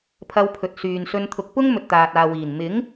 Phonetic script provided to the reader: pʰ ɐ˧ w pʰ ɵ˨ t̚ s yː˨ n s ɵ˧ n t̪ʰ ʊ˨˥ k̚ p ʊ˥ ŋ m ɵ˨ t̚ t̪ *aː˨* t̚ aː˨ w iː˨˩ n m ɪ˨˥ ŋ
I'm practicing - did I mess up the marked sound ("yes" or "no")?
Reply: no